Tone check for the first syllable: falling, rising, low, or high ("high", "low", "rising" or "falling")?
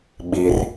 low